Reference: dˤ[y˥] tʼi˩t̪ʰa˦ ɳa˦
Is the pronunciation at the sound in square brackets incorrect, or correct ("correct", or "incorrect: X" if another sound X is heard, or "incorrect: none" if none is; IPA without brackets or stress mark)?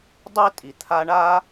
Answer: incorrect: e˥